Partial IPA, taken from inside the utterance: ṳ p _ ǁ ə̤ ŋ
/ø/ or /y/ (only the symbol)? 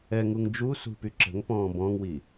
y